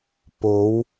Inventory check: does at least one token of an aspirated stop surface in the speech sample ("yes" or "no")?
no